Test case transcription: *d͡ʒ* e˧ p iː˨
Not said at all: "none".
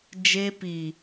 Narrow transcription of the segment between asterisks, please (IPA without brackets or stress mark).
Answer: d͡ʒ